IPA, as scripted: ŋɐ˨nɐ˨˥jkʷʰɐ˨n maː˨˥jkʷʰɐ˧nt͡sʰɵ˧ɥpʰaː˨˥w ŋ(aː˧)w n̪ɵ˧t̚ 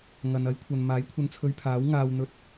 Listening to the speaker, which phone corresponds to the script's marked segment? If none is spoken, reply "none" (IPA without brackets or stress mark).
aː˧